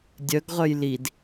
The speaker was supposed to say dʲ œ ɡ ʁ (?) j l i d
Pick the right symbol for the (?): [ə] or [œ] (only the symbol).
œ